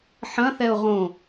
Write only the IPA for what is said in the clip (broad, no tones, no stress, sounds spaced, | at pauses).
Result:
ħ ɐ̃ θ ɛ ʊ̯ ʁ õ